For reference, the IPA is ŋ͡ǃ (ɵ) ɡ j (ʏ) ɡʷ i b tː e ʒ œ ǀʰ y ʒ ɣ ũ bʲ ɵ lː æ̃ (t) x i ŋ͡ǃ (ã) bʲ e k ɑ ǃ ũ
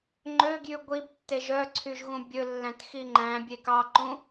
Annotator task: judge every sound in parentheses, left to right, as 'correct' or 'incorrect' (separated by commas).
incorrect, incorrect, correct, incorrect